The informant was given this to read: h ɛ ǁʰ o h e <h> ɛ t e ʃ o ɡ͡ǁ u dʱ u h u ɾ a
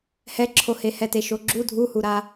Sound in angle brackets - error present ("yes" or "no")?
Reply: no